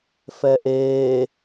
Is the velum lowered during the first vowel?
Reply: no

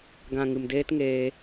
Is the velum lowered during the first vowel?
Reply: yes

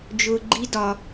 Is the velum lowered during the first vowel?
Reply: no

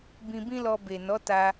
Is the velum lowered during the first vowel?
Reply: yes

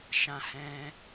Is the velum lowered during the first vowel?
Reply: yes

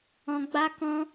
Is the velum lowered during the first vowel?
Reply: yes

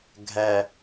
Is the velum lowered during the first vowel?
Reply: no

